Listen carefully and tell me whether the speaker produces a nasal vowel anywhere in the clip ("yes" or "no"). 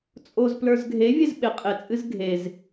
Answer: no